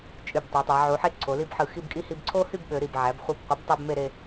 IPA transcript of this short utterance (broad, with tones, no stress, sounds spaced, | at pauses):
t͡ʃʼ y˧˩ b tˤ ø˩˧ tˤ æ˩˧ ʕ u˩˧ ħ e˥˧ ǀʰ o˩˧ l i˥˧ b ħ ɯ˧˩ x i˥˧ b kʼ i˥ h i˧ b ǀʰ o˥ h y˥˧ b ɓ ø˩˧ ɾ i˧˩ b ʕ æ˩˧ b χʷ ɯ˧˩ b qʷ ɯ˩˧ b tˤ æ˥ b m e˥˧ ɾ e˥˧